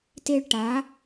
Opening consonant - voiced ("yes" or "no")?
no